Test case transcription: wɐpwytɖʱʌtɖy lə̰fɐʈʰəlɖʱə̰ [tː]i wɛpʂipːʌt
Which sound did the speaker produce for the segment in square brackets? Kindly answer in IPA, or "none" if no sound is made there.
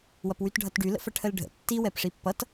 tː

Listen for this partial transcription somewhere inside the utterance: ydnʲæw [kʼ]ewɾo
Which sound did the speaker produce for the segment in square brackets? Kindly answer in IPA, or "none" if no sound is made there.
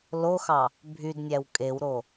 kʼ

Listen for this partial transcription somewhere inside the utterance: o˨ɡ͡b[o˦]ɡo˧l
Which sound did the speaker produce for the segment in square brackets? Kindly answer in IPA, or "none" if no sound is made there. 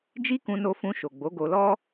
o˨˦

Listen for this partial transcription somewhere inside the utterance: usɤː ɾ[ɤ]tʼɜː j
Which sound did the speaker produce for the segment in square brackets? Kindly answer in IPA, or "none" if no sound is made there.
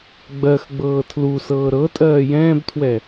ɤ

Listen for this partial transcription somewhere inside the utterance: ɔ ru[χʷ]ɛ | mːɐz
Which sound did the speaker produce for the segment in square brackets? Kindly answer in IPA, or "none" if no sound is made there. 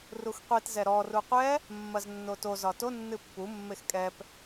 qʷ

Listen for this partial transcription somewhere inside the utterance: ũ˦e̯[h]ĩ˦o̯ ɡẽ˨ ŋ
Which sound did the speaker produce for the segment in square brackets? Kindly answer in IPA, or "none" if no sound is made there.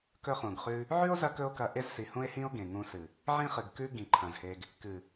h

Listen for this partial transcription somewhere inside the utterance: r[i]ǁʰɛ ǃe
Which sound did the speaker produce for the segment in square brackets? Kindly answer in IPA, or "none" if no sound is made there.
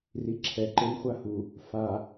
i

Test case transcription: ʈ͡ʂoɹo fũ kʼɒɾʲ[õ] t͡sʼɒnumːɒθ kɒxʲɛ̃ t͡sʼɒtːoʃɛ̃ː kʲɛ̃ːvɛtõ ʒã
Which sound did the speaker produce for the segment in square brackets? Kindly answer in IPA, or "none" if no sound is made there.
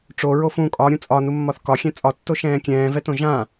ũ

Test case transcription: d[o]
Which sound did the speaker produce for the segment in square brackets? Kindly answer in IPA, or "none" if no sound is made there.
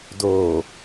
o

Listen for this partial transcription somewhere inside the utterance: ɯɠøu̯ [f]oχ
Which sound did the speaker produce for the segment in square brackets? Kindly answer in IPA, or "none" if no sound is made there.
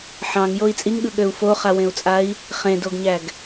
f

